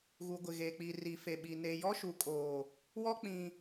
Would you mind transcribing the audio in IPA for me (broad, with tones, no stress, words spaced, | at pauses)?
ɣu˨ɡʷɪ˨ɣeː˨ k͡pi˨ri˨fe˨ɓi˨ ne˨jɔ˦ʃu˨kʼoː˨ | wɔ˦k͡pĩ˨